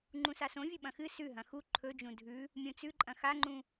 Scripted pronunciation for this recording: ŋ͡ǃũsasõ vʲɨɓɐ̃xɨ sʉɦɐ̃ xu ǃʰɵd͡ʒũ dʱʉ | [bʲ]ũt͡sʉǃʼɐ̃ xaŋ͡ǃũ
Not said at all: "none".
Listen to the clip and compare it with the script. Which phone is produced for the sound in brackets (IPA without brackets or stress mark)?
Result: mʲ